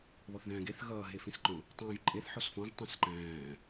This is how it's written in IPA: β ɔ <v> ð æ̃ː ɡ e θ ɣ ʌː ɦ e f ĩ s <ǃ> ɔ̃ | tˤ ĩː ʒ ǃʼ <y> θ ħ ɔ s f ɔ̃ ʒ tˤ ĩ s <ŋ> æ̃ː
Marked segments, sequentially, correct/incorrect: incorrect: θ, correct, incorrect: e, incorrect: ǃ

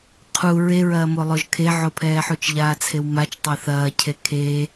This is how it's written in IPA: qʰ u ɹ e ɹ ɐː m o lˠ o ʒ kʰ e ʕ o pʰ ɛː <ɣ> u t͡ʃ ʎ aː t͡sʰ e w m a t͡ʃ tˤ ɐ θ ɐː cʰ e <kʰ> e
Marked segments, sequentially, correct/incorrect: incorrect: ħ, correct

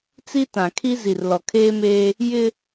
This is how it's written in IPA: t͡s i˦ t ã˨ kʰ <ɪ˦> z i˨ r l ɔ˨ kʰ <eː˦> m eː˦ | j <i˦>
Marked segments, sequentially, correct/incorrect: incorrect: i˦, correct, incorrect: ɪ˦

